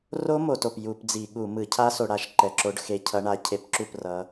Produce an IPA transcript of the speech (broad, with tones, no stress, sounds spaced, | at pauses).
r o˦˥ m o˧˩˧ t o˩ p j u˧˩˧ p d͡z i˧˩˧ ɠ u˧˩˧ m ɯ˧˩˧ cʰ a˦˥ s o˧˩˧ ɽ a˧˩˧ ʃ ǃ ɛ˩ ǁ o˨˦ ɖ x e˨˦ cʰ ʌ˨˦ ɳ a˨˦ cʰ e˧˩˧ p ǁ u˥˩ p r ʌ˨˦